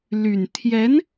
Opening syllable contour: low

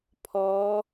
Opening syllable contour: rising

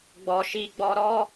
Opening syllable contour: low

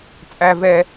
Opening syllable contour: low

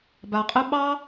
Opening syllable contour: low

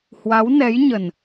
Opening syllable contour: rising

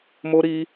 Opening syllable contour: high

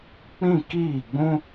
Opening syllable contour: falling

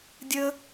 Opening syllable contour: high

